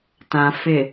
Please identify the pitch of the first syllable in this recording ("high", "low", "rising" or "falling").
low